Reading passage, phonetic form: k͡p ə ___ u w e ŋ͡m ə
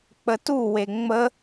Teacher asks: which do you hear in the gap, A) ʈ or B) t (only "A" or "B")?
B